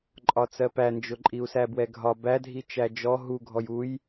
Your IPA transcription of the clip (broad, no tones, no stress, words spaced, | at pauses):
ǃʼɒt͡sɜpænd͡ʒʊ ǃʼiu̯sæbwɛɡʱɒ bædʱi t͡ʃæd͡ʒɔ ɦu ɡʱɔjuj